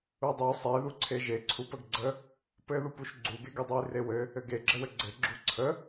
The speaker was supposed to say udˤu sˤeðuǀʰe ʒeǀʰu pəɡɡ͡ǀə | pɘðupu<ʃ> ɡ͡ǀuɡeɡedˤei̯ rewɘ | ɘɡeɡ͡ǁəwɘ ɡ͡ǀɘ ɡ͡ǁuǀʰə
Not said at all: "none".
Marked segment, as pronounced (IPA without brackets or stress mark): ʃ